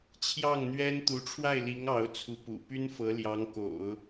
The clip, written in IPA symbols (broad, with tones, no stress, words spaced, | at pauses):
t͡ɕʰjɑ˥˩ŋn̪ɥɛ˥n t̪u˧˥ʈ͡ʂʰwa˥˩ɪ̯li˧˥ŋ ɑ˧˥ʊ̯t͡sʰu˧˥pṵ˨˩ py˥nfɤ˧˥ ljɑ˧˥ŋko̰˨˩˦ʊ̯